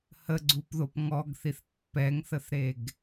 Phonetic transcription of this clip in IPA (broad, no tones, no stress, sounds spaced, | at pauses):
h ə ɡ͡ǀ u p ð o p ŋ ɔ ɡ θ i θ pː ɛ ŋ θ ə θ ɾ e ɡ